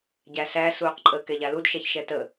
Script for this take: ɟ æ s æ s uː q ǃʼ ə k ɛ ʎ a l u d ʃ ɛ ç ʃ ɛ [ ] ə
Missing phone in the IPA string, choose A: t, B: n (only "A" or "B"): A